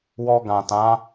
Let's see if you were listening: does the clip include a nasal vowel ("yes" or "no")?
yes